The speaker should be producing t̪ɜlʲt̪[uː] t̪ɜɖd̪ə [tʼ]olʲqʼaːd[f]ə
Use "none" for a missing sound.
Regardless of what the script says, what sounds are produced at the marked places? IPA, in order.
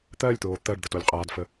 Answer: oː, t, f

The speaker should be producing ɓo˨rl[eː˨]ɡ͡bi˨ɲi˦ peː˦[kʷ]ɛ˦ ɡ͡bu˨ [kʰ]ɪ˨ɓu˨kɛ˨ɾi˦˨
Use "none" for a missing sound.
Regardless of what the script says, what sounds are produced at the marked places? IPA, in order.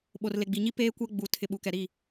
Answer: e˨, kʷ, tʰ

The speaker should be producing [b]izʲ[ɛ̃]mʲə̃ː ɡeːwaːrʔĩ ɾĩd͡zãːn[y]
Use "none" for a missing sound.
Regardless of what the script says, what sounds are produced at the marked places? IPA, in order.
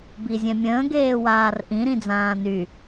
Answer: b, ɛ̃, y

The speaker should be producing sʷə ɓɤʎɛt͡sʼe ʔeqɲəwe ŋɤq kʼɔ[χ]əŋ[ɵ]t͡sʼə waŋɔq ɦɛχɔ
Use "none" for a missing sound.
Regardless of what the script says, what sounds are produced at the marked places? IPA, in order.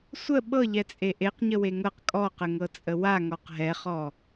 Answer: q, ɤ

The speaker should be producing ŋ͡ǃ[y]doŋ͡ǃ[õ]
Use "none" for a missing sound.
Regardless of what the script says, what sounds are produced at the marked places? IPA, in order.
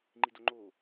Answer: i, o

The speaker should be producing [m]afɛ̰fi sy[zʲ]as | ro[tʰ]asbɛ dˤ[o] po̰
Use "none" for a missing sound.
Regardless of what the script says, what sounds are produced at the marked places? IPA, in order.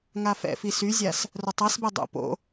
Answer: ŋ, zʲ, tˤ, o̰

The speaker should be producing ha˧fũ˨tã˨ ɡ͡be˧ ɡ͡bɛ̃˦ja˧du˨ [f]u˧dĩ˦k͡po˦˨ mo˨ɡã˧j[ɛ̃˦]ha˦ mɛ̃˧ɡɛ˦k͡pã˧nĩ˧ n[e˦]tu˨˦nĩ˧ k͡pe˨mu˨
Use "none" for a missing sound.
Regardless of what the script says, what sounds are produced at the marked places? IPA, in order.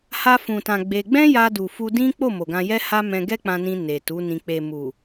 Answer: f, ɛ˦, e˨

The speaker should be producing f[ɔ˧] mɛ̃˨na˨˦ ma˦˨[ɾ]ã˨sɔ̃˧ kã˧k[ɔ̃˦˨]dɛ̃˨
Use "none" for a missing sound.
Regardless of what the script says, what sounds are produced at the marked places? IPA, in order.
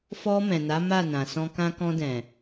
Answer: ɔ˧, n, ɔ̃˧

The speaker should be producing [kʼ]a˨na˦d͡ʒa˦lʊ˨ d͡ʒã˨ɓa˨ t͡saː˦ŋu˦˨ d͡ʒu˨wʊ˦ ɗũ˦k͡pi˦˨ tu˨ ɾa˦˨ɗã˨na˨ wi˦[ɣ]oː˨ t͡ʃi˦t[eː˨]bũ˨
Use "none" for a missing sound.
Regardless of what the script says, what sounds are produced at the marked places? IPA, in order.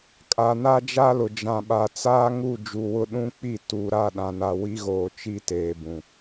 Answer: kʼ, ɣ, eː˨

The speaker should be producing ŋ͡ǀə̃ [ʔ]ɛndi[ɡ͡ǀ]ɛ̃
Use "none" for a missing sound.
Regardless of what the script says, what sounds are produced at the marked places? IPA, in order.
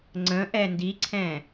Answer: ʔ, ǀʰ

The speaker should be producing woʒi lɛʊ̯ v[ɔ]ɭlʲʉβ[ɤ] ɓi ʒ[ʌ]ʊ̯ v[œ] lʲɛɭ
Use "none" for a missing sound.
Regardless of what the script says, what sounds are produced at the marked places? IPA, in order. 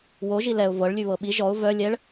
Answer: ɤ, ɤ, ɔ, œ

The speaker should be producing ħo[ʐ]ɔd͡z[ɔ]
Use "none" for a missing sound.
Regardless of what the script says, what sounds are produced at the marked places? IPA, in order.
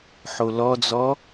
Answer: l, ɔ

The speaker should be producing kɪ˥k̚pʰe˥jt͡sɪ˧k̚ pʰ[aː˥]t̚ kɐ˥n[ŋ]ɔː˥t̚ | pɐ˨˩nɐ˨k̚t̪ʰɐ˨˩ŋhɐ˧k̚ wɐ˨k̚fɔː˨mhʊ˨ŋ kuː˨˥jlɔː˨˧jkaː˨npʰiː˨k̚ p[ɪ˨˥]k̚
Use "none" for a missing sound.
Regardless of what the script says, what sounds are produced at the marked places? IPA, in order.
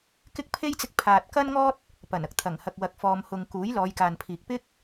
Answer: aː˨, ŋ, ɪ˥

